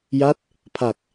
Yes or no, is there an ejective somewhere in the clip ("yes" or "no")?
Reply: no